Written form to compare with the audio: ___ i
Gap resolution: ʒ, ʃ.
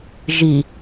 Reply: ʒ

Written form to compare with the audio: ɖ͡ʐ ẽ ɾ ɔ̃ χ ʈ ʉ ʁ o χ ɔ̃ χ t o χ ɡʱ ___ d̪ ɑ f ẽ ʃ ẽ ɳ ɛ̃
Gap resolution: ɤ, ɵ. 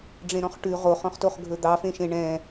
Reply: ɵ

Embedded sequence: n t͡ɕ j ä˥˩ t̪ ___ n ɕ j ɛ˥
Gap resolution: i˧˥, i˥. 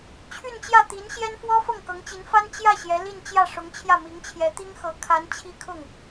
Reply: i˧˥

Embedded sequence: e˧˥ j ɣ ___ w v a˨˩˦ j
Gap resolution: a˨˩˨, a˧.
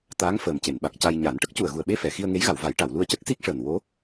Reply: a˨˩˨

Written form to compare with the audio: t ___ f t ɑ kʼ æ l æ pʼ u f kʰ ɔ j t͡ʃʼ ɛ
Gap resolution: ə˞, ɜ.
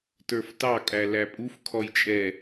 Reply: ə˞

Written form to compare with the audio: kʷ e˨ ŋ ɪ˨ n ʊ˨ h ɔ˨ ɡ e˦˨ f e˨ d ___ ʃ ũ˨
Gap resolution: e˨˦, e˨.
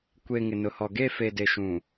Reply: e˨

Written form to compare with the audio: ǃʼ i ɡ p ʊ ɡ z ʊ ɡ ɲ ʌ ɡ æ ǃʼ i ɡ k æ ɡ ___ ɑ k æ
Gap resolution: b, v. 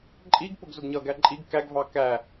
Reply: v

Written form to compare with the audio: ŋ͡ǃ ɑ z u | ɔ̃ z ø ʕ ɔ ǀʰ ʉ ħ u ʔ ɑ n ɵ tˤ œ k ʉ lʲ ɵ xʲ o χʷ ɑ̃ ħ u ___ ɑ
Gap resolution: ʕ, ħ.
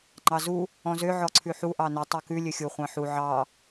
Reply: ʕ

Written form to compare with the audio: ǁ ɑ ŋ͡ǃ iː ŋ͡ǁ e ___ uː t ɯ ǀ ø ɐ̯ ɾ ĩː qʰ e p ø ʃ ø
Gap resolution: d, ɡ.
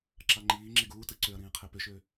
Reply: ɡ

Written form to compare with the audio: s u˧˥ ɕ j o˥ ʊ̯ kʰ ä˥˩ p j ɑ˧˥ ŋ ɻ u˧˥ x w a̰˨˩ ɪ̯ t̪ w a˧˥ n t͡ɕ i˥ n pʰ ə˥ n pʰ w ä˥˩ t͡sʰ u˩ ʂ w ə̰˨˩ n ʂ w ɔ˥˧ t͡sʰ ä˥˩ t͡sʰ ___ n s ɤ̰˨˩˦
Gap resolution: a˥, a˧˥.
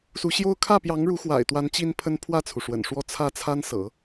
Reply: a˥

